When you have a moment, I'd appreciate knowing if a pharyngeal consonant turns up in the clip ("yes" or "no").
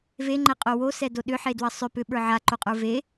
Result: yes